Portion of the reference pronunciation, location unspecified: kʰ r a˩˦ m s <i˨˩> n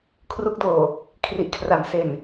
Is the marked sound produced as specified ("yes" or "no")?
no